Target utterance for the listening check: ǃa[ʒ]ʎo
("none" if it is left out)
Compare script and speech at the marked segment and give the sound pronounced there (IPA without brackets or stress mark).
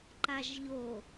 ʒ